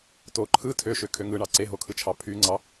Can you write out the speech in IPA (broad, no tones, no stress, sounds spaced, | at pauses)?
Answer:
t o ǃʰ ɯ tʰ ø ʃ ø kʰ ø ŋ ɯ ɳ ɑ ǀ e ɦ o kʰ ɯ t͡ʃʰ ɑ pʰ y ŋ͡ǀ ɑ